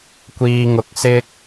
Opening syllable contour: low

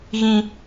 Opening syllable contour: low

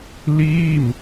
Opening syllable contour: falling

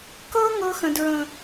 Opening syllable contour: high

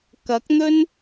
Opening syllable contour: rising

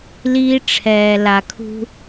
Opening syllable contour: high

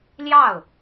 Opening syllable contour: falling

